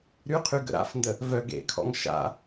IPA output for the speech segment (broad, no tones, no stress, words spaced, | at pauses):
ɾyqʰy ɡə̰ɾa̰fndə | vœ ɡḛkʰɔ̰ŋ ʃa̰